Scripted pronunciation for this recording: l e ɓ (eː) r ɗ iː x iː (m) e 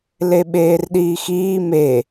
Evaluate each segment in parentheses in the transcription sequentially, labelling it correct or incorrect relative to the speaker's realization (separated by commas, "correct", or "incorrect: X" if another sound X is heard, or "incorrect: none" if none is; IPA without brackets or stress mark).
correct, correct